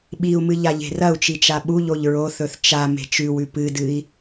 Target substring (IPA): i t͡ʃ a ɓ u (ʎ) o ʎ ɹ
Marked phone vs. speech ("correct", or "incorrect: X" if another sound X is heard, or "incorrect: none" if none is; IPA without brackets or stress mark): correct